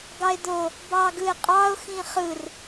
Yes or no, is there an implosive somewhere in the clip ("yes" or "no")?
no